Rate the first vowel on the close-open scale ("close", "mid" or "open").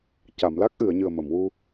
open